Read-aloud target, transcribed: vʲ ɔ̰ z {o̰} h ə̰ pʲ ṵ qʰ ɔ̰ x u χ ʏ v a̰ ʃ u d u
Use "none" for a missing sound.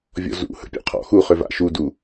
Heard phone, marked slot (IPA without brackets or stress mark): ṵ